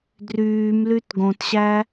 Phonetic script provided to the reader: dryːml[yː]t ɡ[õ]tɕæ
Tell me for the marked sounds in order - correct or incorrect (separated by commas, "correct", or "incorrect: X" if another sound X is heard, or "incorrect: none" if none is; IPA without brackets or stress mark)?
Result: incorrect: y, correct